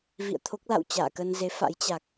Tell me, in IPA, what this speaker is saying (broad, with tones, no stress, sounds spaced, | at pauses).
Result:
v ḭ˧˨ ə̯ t̪ʰ o˦˥ k̚ l a̰˧˨ w t͡ɕ a̰ː˧˨ k ə˧ n z e˨˦ f a̰˧˥ j t͡ɕ a˨˩ k̚